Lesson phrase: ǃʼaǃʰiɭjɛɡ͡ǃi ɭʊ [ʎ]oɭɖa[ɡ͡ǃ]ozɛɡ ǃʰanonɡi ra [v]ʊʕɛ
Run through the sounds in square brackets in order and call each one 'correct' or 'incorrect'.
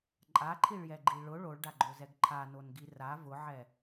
incorrect: ɭ, correct, correct

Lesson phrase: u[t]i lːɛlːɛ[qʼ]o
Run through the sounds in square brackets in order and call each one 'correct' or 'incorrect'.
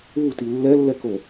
correct, incorrect: k

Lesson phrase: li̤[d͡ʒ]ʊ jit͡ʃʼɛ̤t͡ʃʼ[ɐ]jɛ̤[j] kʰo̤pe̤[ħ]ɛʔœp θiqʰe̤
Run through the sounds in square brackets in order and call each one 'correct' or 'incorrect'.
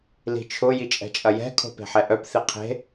incorrect: t͡ʃʰ, correct, incorrect: none, correct

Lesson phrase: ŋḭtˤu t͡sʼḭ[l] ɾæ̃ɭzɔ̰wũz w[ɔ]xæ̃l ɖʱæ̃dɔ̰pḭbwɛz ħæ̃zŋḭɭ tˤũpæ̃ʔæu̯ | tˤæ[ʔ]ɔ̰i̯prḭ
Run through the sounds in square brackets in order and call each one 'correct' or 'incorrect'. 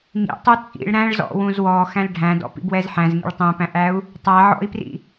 incorrect: ɭ, correct, incorrect: ʕ

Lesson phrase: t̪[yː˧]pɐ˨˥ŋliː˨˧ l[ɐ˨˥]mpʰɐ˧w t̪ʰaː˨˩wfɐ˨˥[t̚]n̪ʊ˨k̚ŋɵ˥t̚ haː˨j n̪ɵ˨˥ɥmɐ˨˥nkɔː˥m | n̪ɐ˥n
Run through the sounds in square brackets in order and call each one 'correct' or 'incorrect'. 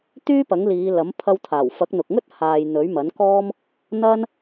incorrect: yː˥, correct, incorrect: k̚

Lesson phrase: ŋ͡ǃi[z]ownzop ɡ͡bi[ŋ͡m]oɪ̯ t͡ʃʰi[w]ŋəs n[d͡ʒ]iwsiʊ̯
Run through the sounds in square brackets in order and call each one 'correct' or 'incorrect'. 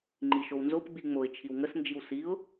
incorrect: ʃ, correct, correct, correct

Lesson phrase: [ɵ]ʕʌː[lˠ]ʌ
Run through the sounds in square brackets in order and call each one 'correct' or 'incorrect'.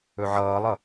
correct, correct

